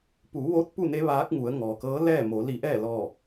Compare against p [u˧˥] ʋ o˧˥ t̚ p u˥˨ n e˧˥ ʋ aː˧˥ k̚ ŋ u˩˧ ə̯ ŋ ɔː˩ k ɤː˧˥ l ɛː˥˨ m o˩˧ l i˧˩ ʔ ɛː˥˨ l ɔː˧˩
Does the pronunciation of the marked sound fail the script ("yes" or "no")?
yes